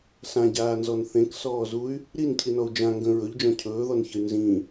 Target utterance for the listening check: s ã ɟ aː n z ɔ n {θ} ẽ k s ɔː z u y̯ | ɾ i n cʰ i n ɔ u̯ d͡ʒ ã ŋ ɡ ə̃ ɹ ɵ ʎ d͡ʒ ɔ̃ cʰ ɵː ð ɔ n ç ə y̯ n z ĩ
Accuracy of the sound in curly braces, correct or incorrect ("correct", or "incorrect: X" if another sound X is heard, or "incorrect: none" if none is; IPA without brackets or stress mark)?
correct